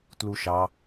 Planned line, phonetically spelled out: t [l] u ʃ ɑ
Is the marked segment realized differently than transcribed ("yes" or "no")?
no